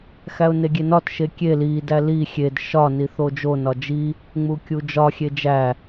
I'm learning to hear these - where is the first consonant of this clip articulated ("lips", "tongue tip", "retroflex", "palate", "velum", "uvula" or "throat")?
velum